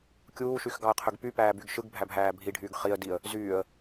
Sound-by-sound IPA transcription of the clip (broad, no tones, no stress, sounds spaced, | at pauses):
kʲ uː ʃ y x ɡ ɑ ə̯ qʰ ø ɡ p y p æː b y ɡ ʃ ɯ ɡ bʱ æ bʱ æː bʱ i ɖʱ yː ɡ χ i ə̯ d i ə̯ | z yː ə̯